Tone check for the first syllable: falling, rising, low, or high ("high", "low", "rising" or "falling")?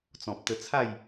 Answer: low